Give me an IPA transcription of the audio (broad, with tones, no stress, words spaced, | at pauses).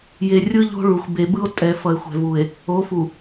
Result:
je˨ rʲɯ˦ʎo̤˦ ɭu˨xʷ be˨bɯ˦o̯ tʼɛ˨ fʌ˨e̯xʷɛ̤˨vu˨e̯ | o˨˦fu˨